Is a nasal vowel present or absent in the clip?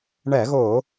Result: absent